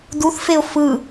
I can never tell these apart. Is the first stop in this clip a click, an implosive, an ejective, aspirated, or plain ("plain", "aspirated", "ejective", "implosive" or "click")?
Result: plain